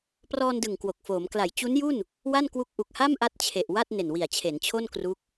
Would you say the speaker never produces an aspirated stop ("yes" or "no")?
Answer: no